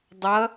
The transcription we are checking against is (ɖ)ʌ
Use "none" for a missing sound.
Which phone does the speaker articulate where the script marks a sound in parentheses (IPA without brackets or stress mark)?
dˤ